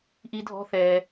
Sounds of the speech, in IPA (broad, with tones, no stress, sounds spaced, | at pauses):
ʔ i˥ dʱ ɔ̤˥ θ ɛː˧